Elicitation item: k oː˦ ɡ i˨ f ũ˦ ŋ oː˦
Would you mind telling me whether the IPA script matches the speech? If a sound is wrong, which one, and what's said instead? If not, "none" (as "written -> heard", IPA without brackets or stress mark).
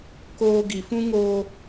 none